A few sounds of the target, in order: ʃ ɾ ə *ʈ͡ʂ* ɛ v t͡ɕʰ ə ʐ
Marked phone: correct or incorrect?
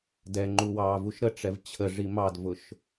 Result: correct